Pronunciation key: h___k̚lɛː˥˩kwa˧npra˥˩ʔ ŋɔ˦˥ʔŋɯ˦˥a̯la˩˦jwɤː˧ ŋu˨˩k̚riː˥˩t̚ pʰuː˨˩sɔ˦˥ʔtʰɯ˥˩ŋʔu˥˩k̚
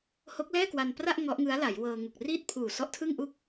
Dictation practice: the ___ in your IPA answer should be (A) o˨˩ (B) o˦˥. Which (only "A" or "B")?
B